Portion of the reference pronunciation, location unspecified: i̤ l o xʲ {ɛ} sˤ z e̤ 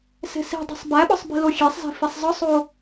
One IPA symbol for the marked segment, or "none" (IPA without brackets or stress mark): e